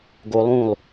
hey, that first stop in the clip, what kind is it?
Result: plain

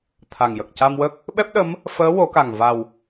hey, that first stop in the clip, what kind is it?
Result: aspirated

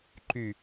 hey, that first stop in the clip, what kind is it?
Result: click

